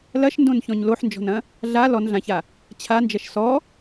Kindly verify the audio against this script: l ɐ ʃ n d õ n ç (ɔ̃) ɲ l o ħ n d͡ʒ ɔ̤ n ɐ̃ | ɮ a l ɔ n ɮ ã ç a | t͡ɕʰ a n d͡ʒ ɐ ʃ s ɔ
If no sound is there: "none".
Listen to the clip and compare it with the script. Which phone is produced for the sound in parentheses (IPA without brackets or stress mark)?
ɔ̃